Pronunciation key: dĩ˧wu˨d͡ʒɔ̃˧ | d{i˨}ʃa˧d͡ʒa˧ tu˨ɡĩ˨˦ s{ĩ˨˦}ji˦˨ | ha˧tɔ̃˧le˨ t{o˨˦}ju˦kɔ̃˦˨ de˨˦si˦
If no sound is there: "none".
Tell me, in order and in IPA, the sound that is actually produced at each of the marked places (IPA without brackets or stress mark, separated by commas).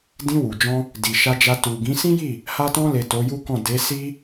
i˨, ĩ˦, o˨˦